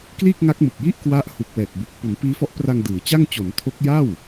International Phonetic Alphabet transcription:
k l iː˥˩ k̚ ŋ a˦˥ k̚ m ɯ˨˩ k̚ j i˥˩ ʔ k w a˦˥ ʔ h u˨˩ k̚ w ɛː˨˩ k̚ b u˨˩ k̚ p u˩˦ n p iː˦˥ f ɔ˦˥ ʔ p r a˧ ŋ d ɯː˩˦ t͡ɕ a˥˩ ŋ t͡ɕ o˩˦ n tʰ o˦˥ k̚ j a˥˩ w

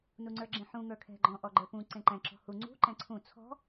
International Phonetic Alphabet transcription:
n u ŋ͡ǀ ə˞ ɡ͡ǁ ẽ ħ ũ ŋ ə˞ kʰ ɛ̤ ɡ͡ǃ ɔ̃ ʔ ɔ ɡ͡ǃ ə˞ p ũ ǀ ẽ ǃ ɛ̃ ǁ ɔ̤ h u ŋ͡ǀ ṳ ǃ ɛ̃ ǀʰ ũ t͡sʰ ɔ̤

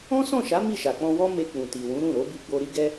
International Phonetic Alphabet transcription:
ɔ̃˦ s ɔ̃˦˨ ʃ a˨˦ m i˦˨ ʃ a˨ k͡p ɔ̃˧ w ɔ˦ m e˧ k͡p ũ˨ t i˨ w ũ˨˦ ɾ ũ˦˨ ɾ o˨˦ b i˧ ɡ͡b o˧ ɾ i˦ ɡ ɛ˦

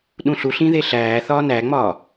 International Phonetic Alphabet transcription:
ɗ ũ ɬ u ɬ ĩ ð e ɬ æː θ ɒː n æ ŋ͡m ɒː

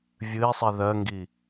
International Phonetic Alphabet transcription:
vʲ ɨ i̯ sˤ i ð ɜ ŋ ɡ i

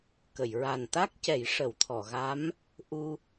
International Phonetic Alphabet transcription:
k ə˨˩˨ j ɹ a˨˩ n t̪ a˦˥ k̚ c ɛ˨˩˦ j ʂ ə˨˩˦ w t̪ʰ ɔ˨˩˨ ɣ a˧˥ m | ʔ u˧

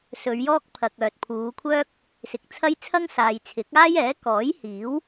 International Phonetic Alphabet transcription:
s ɵ˨˧ ɥ j ɔː˥ k̚ pʰ ɐ˨ k̚ œː˨ t̚ pʰ uː˨˧ kʷʰ œː˥ k̚ | s ɪ˨ k̚ t͡sʰ ɐ˥ j t͡sʰ ɐ˥ ŋ s aː˨ j t͡sʰ ɪ˨˥ k̚ aː˥ j ɛː˨˥ k ɔː˨˥ j h iː˨˥ w

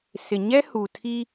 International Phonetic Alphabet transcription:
s ɪ˨ ɲ ɛ˦ h u˨ tʰ i˦

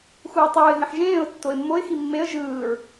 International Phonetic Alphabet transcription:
x uː tˤ uː ɪ̯ ɦ ẽ ħ ʒ ẽː ʊ̯ tː o ɪ̯ mː o ɪ̯ x i mː e ə̯ ʒ ɯː ɹ

